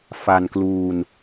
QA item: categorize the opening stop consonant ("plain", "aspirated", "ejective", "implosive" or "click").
plain